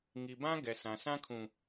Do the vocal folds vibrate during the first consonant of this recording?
yes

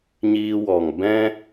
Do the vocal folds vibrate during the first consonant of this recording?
yes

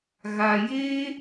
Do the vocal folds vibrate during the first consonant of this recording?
yes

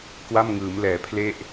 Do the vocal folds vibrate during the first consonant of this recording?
no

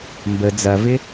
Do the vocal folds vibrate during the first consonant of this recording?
yes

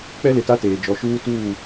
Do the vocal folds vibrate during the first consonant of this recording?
no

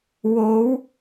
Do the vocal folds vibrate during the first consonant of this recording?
yes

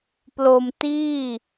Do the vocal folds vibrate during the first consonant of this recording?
no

